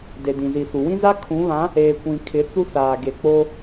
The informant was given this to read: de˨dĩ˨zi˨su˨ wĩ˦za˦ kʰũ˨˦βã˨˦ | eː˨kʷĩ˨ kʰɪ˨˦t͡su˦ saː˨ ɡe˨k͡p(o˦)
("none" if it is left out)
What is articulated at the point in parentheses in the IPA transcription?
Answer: o˦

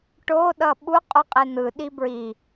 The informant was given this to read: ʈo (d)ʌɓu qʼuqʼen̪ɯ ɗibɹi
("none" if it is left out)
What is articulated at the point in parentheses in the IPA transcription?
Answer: ɗ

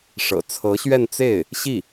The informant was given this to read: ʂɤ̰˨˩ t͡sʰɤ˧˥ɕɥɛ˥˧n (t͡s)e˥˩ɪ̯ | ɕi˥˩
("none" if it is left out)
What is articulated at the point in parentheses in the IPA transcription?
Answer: t͡s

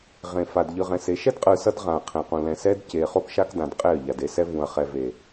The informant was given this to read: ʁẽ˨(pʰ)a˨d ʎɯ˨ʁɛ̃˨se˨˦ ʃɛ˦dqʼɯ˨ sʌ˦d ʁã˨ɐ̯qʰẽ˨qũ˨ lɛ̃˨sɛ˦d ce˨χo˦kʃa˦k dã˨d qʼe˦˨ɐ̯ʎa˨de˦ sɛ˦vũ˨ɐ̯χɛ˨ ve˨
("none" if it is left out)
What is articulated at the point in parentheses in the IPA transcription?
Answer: f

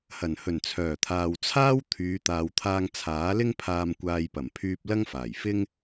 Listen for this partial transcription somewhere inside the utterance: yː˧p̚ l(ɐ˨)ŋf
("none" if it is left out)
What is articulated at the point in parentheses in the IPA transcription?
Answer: ɐ˥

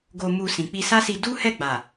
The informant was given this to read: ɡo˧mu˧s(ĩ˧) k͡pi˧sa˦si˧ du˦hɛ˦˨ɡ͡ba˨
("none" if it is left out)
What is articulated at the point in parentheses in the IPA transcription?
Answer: ĩ˨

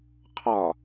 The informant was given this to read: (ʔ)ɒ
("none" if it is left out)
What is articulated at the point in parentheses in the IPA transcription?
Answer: qʰ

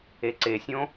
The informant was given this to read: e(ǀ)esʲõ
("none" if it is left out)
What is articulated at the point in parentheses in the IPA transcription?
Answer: ǀ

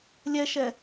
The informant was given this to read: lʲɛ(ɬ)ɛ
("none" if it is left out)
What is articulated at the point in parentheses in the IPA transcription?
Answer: ʃ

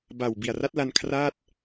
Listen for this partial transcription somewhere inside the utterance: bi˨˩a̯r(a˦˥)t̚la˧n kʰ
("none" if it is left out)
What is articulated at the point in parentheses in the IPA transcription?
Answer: a˦˥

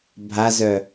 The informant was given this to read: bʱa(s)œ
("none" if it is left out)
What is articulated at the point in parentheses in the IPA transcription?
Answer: z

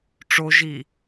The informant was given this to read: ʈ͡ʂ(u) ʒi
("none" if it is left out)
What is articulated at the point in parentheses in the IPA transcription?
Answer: o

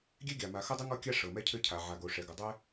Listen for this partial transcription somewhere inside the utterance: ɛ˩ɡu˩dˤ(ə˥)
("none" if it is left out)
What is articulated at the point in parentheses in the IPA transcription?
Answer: ɛ˥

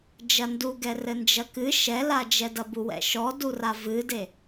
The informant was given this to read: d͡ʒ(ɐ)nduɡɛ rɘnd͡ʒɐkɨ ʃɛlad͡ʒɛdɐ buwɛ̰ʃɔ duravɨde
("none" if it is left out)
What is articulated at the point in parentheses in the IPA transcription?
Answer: ɐ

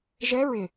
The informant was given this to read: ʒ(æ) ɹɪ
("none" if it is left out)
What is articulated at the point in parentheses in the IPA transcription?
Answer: ɛ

